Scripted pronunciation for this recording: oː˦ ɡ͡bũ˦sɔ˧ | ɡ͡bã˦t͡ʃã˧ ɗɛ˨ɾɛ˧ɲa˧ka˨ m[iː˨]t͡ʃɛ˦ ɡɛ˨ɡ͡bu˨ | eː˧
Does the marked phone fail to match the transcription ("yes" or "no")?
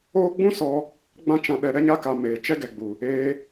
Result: yes